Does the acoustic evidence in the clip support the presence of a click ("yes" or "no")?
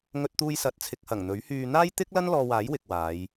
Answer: no